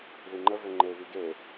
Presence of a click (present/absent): present